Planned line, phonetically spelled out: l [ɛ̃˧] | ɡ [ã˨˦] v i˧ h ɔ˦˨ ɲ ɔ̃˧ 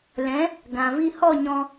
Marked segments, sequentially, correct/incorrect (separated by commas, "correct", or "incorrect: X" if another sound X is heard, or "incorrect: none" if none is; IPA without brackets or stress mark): incorrect: ɛ̃˨˦, incorrect: ã˨